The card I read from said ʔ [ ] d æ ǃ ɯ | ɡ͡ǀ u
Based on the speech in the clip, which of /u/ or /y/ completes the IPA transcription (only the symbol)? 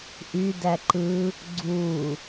y